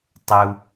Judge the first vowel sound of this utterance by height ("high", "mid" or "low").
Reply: high